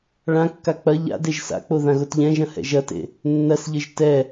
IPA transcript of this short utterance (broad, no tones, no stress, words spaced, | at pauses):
ɭãkːa k͡pɐ ʎa̰deʒ sa̰k͡po ðãɣotʎɛ̃ʒɐ̃ hɛ̰ʒɐtḛ | nːɐsʎɘʒ tɛ